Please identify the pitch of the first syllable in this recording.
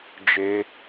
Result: high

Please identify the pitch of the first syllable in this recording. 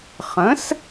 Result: rising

